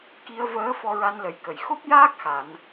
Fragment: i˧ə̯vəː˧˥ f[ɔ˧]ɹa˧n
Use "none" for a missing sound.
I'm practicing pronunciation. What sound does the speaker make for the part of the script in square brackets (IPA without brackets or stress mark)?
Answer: ɔ˧